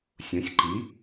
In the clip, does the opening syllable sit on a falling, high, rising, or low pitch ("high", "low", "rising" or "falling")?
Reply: rising